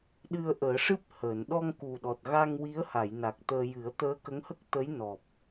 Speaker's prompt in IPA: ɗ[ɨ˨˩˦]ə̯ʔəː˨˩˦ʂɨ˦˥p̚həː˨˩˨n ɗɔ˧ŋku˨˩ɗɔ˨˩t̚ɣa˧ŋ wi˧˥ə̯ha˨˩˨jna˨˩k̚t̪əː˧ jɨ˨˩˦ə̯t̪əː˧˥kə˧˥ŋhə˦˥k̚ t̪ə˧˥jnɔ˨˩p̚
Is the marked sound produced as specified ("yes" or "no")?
no